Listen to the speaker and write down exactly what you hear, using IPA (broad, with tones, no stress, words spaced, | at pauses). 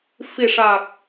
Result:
fi˨˩ʂa˨˩k̚